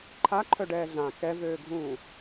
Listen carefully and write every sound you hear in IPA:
ǃʰ a ǃʰ œ ɖ ɛː ɮ ã k ɛ v øː ɡʱ ũː

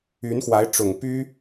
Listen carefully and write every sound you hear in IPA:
y˧˥ n x w a˧˥ ɪ̯ ʈ͡ʂ ʊ˨˩ ŋ p y˥

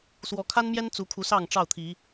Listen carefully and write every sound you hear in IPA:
s w ɔ˨˦ kʰ a˦ n m j ɛ˦ n t͡s u˨˦ kʰ u˨˦ s ɑ˥˨ ŋ ʈ͡ʂ ɑ˥˨ ʊ̯ t̪ʰ i˨˦

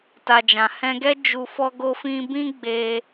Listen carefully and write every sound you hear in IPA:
t a˨ d͡ʒ ã˨ h ɛ̃˧ ɡ ɛ˦ d͡ʒ u˧ f ɔ˦ ɡ o˦ f ĩ˦ b ĩ˦ ɡ͡b e˧

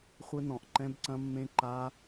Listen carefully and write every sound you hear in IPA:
χʷ ɘ˦˥ n ɔ̃˧˩ ʔ ǃ ɛ̃˦˥ b ǀ ɐ̃˦˥ mː ẽ˦˥ ǃ a˦˥

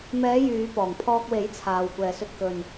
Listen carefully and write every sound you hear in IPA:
m ɛː˨˧ j yː˨˧ p ɔː˨˩ ŋ pʰ ɔː˧ k̚ w e˨˥ j t͡sʰ aː˨ w kʷ ɛː˨ s ɵ˧ t̚ k ɵ˨ n

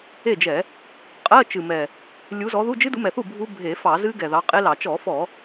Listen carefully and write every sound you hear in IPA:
e˥˩ d͡ʒ ɛ˧˩˧ | qʼ ɜ˧˥˧ t͡ʃ ɨ˨˩ m ɛ˨˩ | lʲ u˨˦ z ɔ˨˦ ð u˧˥˧ d͡ʒ ɨ˦˥ d u˨˦ m ɛ˨˩ θ u˥˩ bʱ u˦˥ bʱ e˧˩˧ f ɑ˧˩˧ z ɨ˦˥ ɡ ɛ˨˩ ð ɑ˨˦ qʼ e˦˥ l ɑ˧˩˧ t͡ʃ ɔ˧˩˧ f ɔ˧˩˧

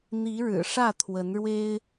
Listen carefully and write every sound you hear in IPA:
n̪ i˨˦ ɻ ɻ̩˨˩ ʂ ä˥˨ t̪ʰ w ə˨˦ n ɻ w e˦ ɪ̯

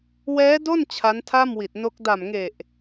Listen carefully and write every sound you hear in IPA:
w ɛː˦˥ d o˥˩ n t͡ɕʰ a˦˥ n tʰ a˥˩ m w i˨˩ t̚ n o˦˥ k̚ d a˨˩ m ŋ e˨˩ ʔ

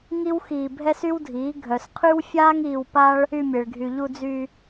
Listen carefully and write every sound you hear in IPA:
ŋ i˦ w x iː˧ bʱ ɛ˦ s y˦ w dʱ iː˨˦ ɡʱ œ˨ s qʰ y˦ w fʲ aː˦ ŋ iː˧ w p a˦ ɭ | y˧ mʲ e˨ ɭ ɡʱ y˨ ʎ u˧ d͡z y˧

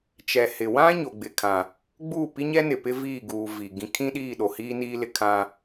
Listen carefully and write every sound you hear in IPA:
t͡ʃ ɛ˨ h ɪ˨ w ã˦ ɲ o˨ ɡ͡b ɪ˨ kʰ ã˨ | ɡ͡b uː˦˨ p i˦ ɲ ɛ˦ n ɪ˨ p ɪ˦ v iː˦˨ ɡ uː˨ v i˨ ɡ ĩ˨ kʰ ĩ˦ ɗ iː˦˨ ɗ o˨ h iː˦ n iː˦ l ɪ˦ kʰ ã˦

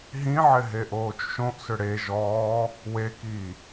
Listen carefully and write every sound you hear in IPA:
ɦ ĩ ʕ ɪ ɦ e ʔ oː t͡ʃ ʃ õ ʔ s ʏ ɽ e ʒ ɔː | w e k iː

